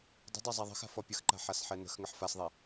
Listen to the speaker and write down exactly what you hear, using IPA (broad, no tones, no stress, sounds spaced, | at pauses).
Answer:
dˤ ə̤ dˤ ɛ zˤ a ðˤ ə̤ x a̤ f ɔ pʲ ə x ǃ a̤ ħ a s ħ ɛ n ə̤ x ŋ ə ħ f a s ðˤ ɛ